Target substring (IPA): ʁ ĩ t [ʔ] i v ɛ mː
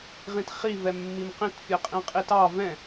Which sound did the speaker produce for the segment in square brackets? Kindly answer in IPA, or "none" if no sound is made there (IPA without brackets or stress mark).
χ